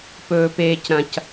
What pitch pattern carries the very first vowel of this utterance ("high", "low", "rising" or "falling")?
low